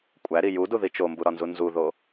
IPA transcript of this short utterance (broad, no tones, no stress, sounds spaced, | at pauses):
kʷʼ æ ɾ i j u d u ð i t͡ʃ o m b u ɾ ɒ n z u n z u ð o